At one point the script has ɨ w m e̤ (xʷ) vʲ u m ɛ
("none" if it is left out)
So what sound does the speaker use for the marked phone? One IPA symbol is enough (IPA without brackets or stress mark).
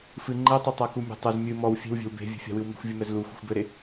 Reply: xʷ